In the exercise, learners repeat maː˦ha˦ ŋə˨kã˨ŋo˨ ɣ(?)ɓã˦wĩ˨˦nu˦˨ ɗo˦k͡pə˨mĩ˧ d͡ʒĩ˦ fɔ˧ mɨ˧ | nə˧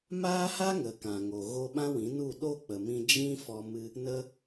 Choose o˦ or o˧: o˧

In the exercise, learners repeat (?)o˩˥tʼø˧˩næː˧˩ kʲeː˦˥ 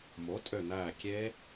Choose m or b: m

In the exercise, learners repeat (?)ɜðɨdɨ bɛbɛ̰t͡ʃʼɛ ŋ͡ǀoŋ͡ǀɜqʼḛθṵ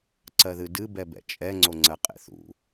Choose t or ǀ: ǀ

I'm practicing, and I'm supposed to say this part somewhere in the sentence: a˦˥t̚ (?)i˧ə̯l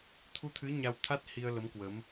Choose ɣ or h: h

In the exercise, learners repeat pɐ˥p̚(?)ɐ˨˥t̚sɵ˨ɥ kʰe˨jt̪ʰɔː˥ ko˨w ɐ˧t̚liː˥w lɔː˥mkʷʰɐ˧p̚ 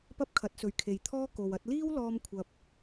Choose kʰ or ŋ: kʰ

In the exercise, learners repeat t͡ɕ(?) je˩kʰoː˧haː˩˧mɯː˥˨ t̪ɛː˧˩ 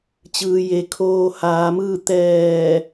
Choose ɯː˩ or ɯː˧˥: ɯː˩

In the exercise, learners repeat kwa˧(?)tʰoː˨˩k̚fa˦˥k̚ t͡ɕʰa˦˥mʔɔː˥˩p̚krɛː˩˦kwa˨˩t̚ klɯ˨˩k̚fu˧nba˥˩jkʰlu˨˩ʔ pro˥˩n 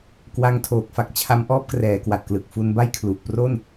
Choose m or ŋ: ŋ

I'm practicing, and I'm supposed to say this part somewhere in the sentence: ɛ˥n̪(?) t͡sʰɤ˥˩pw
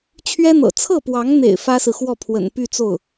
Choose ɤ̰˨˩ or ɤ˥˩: ɤ̰˨˩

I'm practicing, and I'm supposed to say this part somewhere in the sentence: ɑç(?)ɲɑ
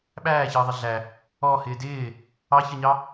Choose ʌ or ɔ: ʌ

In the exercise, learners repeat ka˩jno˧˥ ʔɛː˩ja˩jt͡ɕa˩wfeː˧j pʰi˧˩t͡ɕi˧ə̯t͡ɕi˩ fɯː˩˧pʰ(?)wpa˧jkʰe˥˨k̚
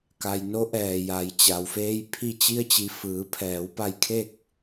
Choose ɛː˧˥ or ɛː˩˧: ɛː˩˧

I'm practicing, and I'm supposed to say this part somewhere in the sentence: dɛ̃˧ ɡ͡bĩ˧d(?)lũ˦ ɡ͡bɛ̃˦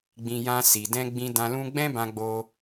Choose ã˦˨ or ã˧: ã˧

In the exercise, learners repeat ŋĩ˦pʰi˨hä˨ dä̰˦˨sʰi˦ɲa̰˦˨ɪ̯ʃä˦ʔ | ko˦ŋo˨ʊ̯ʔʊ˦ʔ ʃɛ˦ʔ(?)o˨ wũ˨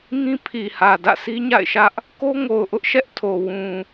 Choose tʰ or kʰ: tʰ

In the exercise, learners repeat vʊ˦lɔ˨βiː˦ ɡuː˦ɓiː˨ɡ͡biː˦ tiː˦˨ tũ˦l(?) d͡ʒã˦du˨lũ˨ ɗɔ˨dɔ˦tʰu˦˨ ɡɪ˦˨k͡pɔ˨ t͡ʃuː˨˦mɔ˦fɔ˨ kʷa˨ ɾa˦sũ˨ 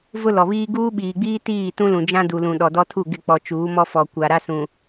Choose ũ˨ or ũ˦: ũ˨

